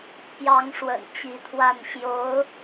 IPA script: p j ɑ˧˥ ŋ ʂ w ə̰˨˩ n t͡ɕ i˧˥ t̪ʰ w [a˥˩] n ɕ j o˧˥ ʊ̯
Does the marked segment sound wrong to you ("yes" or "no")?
no